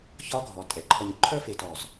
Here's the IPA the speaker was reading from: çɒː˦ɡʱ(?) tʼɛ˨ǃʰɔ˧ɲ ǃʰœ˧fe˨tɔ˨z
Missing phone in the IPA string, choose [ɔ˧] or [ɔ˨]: ɔ˨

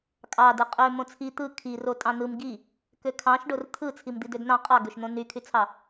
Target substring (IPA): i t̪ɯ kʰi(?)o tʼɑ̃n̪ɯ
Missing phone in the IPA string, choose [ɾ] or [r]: r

